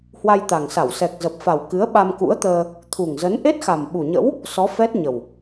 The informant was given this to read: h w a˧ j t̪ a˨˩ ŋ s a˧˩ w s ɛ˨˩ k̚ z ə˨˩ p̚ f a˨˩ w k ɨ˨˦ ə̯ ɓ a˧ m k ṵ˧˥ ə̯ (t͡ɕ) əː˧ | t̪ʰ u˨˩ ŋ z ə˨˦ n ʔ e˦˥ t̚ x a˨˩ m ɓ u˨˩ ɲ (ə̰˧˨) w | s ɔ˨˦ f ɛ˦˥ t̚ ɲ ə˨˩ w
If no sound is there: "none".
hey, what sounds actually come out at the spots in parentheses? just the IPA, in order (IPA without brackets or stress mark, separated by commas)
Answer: t̪, ə̰˧˥